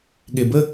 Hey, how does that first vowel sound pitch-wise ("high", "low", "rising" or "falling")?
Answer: low